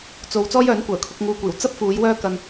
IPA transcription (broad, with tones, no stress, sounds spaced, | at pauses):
t͡s o˨˧ w t͡s ɔː˥ j œː˨˥ n kʷ œː˨˩ kʰ ʊ˧ k̚ ŋ uː˧ kʷ iː˨˩ w t͡s ɐ˥ p̚ f uː˨˧ j w œː˥ k ɐ˧ n